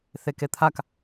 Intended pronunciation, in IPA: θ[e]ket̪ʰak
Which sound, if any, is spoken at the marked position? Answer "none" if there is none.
e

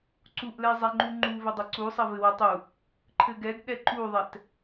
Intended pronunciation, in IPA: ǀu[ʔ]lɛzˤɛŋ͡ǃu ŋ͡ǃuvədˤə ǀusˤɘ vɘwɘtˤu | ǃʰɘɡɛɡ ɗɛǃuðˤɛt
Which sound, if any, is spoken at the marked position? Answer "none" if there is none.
ʔ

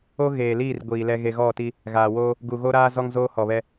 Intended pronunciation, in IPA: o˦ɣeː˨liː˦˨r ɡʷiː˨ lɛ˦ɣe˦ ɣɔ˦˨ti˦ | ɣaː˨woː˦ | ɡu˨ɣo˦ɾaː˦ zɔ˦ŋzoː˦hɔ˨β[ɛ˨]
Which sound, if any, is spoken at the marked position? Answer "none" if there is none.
ɛ˦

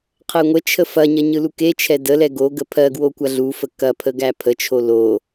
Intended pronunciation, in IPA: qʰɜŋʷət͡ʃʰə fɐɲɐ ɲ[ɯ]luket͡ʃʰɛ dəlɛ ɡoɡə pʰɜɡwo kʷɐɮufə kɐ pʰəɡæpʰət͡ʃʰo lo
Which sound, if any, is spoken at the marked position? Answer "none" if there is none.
ɯ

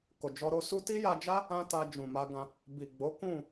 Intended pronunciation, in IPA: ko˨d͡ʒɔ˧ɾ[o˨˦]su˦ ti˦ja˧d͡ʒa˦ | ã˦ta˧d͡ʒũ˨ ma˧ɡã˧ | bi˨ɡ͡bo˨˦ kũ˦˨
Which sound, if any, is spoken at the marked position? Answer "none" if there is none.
o˧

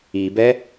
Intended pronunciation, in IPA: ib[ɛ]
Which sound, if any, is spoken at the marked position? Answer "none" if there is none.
ɛ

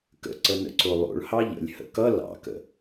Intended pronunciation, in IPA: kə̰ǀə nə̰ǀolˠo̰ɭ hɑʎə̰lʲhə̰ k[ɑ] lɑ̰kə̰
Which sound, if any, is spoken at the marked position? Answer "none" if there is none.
ʌ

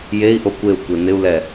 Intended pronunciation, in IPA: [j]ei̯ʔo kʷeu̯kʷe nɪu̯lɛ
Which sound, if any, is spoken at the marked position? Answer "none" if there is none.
j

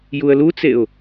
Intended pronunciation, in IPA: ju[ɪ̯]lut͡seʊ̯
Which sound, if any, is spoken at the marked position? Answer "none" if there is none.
ə̯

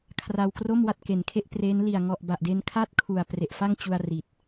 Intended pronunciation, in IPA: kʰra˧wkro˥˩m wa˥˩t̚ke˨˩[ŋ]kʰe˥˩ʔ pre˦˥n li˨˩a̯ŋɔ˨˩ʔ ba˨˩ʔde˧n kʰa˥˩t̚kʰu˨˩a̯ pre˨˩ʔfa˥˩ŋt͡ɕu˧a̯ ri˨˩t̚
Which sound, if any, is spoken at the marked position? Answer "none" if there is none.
n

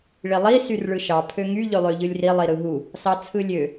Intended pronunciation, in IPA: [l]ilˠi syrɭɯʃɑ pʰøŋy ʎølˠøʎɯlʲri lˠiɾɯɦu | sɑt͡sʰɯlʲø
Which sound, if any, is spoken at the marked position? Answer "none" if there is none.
ɭ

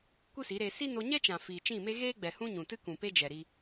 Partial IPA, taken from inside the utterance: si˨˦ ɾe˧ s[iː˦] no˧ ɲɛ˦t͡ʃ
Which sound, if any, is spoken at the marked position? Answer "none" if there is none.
i˦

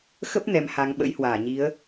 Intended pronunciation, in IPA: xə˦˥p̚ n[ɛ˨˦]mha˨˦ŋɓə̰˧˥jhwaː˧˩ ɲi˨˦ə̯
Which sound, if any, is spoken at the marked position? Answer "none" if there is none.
ɛ˨˦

